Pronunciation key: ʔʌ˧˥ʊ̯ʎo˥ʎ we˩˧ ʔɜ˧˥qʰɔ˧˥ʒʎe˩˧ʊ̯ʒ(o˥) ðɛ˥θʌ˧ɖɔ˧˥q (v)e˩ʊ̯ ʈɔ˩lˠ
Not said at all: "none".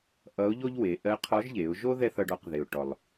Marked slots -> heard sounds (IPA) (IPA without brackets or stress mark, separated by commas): o˥, ð